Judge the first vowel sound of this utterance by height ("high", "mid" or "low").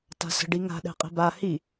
low